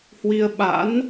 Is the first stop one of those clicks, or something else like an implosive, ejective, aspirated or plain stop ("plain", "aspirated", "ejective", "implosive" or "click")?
implosive